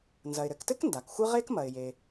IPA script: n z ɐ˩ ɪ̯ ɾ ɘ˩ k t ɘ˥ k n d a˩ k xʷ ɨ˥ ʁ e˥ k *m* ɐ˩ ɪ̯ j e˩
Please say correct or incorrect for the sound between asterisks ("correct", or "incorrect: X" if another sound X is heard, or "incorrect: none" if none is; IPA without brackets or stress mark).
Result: correct